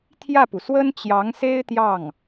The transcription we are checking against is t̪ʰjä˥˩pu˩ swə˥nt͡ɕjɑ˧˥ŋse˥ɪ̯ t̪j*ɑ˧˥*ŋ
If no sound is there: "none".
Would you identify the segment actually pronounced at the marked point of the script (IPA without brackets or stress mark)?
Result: ɑ˥˩